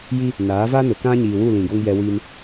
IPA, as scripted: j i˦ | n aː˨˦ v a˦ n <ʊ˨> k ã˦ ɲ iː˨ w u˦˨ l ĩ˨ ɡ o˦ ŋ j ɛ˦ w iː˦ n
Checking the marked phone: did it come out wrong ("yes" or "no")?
no